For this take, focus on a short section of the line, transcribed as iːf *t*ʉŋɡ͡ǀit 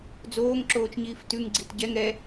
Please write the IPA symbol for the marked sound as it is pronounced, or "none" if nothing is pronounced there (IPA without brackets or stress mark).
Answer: t